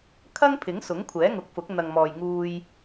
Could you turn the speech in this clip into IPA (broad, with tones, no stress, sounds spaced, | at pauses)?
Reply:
kʰ ɐ˥ ŋ pʰ ɪ˨˥ ŋ s ʊ˨˥ ŋ kʷʰ ɛː˨˥ ŋ ʊ˨˥ k̚ f ʊ˨˥ k̚ n̪ ɐ˨ ŋ m ɔː˨ j ŋ uː˧ j